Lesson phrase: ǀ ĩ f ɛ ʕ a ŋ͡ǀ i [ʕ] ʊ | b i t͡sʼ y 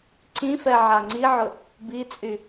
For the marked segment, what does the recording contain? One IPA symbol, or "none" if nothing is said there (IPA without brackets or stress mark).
ʕ